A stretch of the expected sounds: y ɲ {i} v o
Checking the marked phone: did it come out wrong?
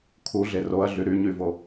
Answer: yes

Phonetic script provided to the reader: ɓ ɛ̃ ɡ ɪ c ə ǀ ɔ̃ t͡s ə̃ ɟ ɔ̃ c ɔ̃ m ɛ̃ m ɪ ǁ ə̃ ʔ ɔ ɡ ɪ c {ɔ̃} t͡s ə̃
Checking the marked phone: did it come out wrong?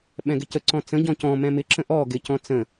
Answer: no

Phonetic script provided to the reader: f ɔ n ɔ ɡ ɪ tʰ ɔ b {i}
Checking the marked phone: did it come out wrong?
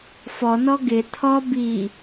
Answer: no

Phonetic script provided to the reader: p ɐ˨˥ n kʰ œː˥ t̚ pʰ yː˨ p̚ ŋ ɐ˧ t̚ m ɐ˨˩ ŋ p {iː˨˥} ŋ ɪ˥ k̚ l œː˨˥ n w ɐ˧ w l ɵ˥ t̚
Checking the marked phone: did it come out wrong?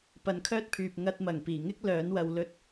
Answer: yes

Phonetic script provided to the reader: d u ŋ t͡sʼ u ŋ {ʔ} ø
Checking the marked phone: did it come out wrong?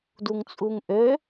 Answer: no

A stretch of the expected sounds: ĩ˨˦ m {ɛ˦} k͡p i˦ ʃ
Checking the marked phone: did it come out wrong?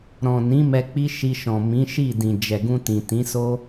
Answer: yes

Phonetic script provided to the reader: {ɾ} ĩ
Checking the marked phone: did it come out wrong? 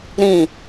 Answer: no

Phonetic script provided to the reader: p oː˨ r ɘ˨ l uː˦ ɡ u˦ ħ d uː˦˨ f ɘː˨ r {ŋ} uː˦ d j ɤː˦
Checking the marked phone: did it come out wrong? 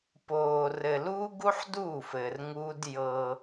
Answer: no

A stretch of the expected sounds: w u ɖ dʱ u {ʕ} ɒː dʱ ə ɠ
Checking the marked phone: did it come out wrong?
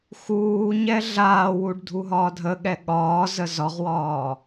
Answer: yes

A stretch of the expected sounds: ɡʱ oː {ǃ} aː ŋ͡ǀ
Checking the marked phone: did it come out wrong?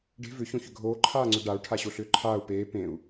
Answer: yes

